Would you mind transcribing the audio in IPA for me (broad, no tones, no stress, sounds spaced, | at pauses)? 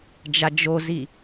d͡ʒ a d͡ʒ o z i